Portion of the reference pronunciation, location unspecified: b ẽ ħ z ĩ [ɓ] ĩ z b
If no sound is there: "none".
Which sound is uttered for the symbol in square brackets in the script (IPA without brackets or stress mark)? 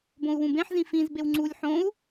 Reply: f